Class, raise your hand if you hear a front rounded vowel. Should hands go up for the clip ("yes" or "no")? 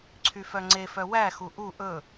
yes